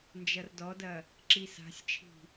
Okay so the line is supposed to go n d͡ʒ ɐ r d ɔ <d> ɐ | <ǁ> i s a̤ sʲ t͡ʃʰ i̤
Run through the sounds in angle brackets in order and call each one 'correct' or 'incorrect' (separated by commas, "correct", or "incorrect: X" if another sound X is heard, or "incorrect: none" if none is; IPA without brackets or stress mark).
correct, correct